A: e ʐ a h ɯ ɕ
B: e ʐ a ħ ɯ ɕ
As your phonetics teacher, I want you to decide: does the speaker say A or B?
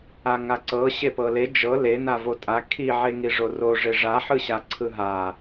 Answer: B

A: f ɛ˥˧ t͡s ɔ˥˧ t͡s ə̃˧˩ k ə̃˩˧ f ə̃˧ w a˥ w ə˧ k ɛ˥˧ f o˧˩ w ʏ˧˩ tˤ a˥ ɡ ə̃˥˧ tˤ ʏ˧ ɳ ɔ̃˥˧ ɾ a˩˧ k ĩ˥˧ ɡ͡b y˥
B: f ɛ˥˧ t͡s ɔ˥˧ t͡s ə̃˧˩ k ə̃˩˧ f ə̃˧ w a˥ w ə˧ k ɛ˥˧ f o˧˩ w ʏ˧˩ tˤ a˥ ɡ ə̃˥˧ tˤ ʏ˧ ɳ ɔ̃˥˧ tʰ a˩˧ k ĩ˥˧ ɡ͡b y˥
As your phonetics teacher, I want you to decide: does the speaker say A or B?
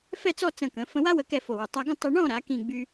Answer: A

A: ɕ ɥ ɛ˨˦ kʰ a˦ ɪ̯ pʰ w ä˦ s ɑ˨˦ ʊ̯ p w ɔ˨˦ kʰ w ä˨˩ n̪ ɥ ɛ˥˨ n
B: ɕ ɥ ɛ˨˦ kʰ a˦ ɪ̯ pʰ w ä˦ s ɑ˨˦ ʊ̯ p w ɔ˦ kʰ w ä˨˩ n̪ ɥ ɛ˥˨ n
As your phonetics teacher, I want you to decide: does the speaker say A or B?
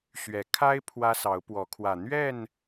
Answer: A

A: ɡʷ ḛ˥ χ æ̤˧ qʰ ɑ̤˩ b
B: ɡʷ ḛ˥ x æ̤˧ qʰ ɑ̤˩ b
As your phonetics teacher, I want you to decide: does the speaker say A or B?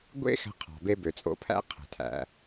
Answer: B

